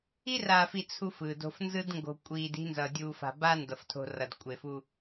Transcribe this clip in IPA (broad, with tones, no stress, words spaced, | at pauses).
i˦ra˨fi˨ t͡sʰu˦fɯ˨do̤˦f nzɯ˦d ŋɡo̤˨kʷʼiː˨d i̤˦nzʌ˨ dʲu˨fa̤˨ba˦ ndʌ˨ftʰo̤˦rʌ˨d kʷʼe˨fu˦